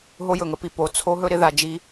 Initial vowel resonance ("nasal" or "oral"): oral